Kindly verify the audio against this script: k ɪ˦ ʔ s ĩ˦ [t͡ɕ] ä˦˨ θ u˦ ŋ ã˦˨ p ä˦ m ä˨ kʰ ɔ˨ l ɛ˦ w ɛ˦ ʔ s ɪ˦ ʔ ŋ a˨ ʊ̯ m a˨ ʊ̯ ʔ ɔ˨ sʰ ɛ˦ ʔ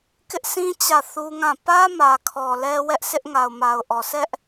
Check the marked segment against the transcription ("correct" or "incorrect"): correct